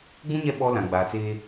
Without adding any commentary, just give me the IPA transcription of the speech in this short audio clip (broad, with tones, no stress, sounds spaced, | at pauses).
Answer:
ɡ͡b ũ˦ ɲ ɛ˦˨ ɓ ɔ˦ l ã˨ ɡ͡b aː˨ t͡s eː˦